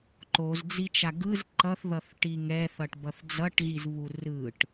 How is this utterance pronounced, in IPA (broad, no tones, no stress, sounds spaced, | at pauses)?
ǃ o z d͡z i t͡ʃ a ɡ ɯ z ǃ ʌ θ ð ʌ θ ʈ i ŋ ɛ θ ʌ ʈ b ʌ θ d͡z ʌ ʈ ɣ i z β u r ɯ ʈ